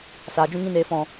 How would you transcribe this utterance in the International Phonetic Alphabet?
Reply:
saː˨d͡ʒũ˦ŋĩ˦neː˧ fɔ̃˨

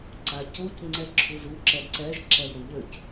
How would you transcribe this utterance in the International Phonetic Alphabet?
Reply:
ǀacuc ŋ͡ǀɛǁʰuzu ǁɛǀɛʒ ǁɛwɾuʎɘc

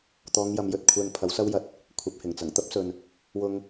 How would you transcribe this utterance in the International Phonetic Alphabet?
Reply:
t̪ɔː˨˧ŋjɐ˨mjɵ˨t̚ kʷʰɛː˧ŋpʰɐ˨˥wsɐ˥wjɐ˧t̚ | kʷʰɐ˨˥p̚hɪ˨˩ŋt͡sɐ˨˩ŋ t̪ɐ˥p̚sɵ˨n | wʊ˧ŋ

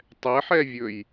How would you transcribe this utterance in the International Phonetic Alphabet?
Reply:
tˤɛħɛvʲɵj

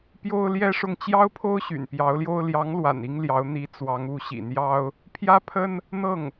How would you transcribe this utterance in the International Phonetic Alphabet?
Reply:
pjo˥ʊ̯ljɛ˥ʂʊ˥˩ŋ t͡ɕjɑ˥ʊ̯pʰo˥ʊ̯ ɕy̰˨˩npjɑ˧˥ʊ̯ljo˥ʊ̯ ljɑ˧˥ŋlwa̰˨˩n i˥ŋljɑ˧˥ʊ̯ n̪i˧˥ t͡swɑ˧˥ŋu˧˥ɕḭ˨˩n̪jɑ˥ʊ̯ | pʰjä˥pʰə˥n | n̪ɤ˥˩ŋ

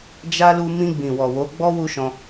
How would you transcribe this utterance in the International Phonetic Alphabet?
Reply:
d͡ʒa˦ lu˧mĩ˧ ɡ͡bĩ˨wɔ˨wo˨˦ɡ͡bɔ˦ wu˦ʃɔ̃˧

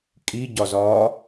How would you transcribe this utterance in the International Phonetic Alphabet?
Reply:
kʼiɟɒzɒː

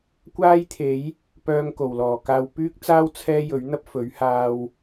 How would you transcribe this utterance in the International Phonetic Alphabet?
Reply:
kʷaː˥jt̪ʰe˨˥j | pœː˧ŋko˨˩wlɔː˨˩kaː˧w pyː˥k̚t͡saː˥w t͡sʰɛː˥jɵ˨˥ɥn̪ɐ˥p̚ fɵ˨˥ɥhaː˧w

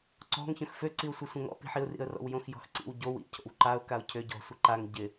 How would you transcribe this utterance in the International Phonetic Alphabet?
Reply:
ǀɔ̤ŋ çœ̃xfø ǀiʊ̯sʷœsʷœ̃ŋɔ̰ pi̤ħiʊ̯rḭə̯rɔ̰w jõxjɔ̤xǀḭw ɟow ḭ cʰo̰wǃaʊ̯ kaʊ̯cʰø ɟɔ̤ sʷɪǃaŋ ɟɪ

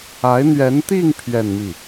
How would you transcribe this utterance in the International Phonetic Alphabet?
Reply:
a˧˥ɪ̯n̪ɥɛ˧˥nt̪i˥˧ŋ pʰɥɛ˥˧nmi˥˩

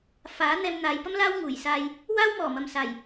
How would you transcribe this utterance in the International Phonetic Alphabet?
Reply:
faː˨˥ n̪ɛː˧mn̪aː˨˧jpɐ˥mlaː˥w ŋuː˨˩jsaː˧j | waː˥wmɔː˨˩mɐ˨m saː˨˩j

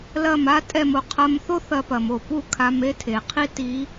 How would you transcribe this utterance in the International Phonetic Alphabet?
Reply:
lɐ˧˩ma˥tʼɛ˧˩m o˧qʰɐ˧mθo˥ θɐ˧pɐ˩mo˥˩ pu˥˩kʰa˧m e˧˥tʰe˩qʰi˥ ti˧˥

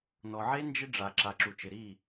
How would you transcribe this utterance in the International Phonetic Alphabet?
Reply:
nɔ˨ʕe˦ nd͡ʒɪ˦ɖ͡ʐa˨ ǁa˨ǁu˨t͡ʃɪ˨ ɾi˦˨

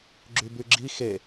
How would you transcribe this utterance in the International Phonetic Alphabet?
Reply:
ɡ͡ǁybyɡ͡ǁi xe

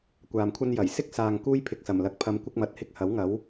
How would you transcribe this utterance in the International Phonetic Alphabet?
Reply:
kʷaː˨mkʷʰɐ˥njɐ˨˩j sɪ˥k̚saː˨ŋ kuː˥j pʰɪ˧k̚sɐ˨˩mlɐ˨˥k̚pʰɐ˧m kʷɪ˥k̚mɐ˨˥t̚hɪ˥k̚ hɐ˨˥wŋɐ˨˥w

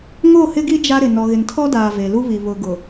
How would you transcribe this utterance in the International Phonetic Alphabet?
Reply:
ŋo˦˨hɪ˦ɡi˦ d͡ʒa˦ɾɪ˨ nɔ˨ɣɪ˨ntʰɔ˦daː˨ ve˨lu˦βi˨ βʊ˨ɡʊ˨

